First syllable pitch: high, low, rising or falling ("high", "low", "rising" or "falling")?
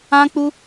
high